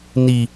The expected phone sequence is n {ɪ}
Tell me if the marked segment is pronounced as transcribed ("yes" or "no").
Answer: no